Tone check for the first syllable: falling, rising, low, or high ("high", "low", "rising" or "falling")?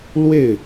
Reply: falling